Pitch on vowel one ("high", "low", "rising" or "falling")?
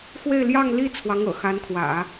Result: falling